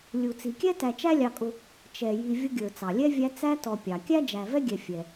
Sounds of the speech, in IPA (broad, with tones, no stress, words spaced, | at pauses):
lʲu˩t͡si˩kʲɛ˥ tæ˨t͡ʃæ˥lʲɑ˨kʼʊ˨ | t͡ʃɛ˩ji˨ vʲʊ˦ɡʲə˞˩ t͡sɑ˩lʲɛ˥vʲæ˦ t͡sæ˦tɔ˨pʲɑ˩ kʲæ˥d͡ʒæ˨vɛ˥ɡʲɛ˨ fʲɛ˩